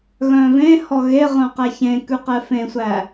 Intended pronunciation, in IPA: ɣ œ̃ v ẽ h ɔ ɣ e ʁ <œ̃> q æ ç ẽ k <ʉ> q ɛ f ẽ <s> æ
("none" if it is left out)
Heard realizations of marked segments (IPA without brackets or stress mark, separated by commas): œ̃, ʉ, sʷ